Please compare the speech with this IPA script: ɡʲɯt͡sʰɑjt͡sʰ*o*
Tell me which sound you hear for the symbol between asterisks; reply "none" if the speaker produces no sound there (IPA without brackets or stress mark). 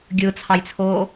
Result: oː